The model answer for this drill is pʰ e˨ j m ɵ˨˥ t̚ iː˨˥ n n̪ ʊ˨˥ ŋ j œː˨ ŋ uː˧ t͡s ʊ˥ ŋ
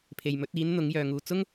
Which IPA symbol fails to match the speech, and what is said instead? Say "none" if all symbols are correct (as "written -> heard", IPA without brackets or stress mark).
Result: none